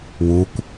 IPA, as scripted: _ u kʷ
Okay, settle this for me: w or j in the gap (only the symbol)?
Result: w